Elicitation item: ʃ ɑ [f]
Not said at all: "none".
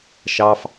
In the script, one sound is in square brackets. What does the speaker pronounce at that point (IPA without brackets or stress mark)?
f